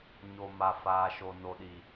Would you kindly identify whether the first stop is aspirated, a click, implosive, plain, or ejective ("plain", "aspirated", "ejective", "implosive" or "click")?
implosive